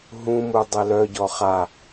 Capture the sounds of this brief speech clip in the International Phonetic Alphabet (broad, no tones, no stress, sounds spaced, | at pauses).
ɦ ũ m u dˤ ɛ l œ ɟ ɔ χ a